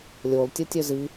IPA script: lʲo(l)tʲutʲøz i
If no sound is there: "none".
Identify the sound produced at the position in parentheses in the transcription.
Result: l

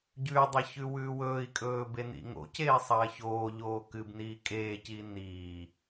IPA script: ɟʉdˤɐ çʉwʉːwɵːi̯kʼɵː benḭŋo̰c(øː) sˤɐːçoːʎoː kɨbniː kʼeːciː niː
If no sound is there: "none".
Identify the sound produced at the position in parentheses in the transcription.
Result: eː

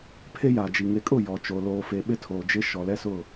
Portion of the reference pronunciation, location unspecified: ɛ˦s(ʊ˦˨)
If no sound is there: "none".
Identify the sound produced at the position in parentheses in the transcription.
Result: ʊ˦˨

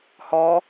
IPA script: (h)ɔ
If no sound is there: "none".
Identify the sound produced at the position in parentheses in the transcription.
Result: h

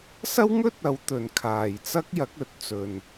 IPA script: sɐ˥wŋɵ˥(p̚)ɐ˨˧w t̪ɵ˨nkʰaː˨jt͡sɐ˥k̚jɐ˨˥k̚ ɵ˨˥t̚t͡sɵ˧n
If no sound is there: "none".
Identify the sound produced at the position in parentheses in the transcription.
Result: t̚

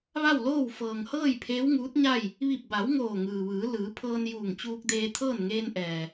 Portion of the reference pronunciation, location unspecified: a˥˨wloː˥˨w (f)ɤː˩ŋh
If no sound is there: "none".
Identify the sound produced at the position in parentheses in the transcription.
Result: f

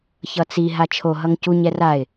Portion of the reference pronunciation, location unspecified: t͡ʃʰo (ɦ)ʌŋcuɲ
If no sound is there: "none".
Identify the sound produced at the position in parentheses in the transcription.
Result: ɦ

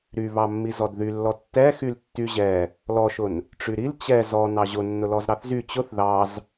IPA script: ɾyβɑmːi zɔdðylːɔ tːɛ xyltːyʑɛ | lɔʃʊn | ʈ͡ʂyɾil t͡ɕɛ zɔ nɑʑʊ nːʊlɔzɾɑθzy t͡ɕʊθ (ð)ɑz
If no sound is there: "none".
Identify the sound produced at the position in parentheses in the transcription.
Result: ð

